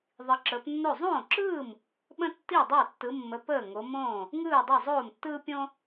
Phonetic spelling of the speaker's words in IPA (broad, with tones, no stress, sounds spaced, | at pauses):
ðˤ i˨˦ ǁ əː˨˦ p nː o˥˩ zˤ õː˥˩ ǁ ɯː˥˩ m | ɓ ə̃˥ tː i˥˩ dˤ a˥˩ tː ɯ˨˦ mː ə˨˦ p əː˥˩ ŋ o˨˦ m õː˥˩ | ŋ ɯː˥˩ dˤ a˥˩ zˤ oː˥˩ m tː ɯː˥ pʲ õ˥